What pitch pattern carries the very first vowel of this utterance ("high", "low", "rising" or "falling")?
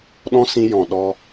high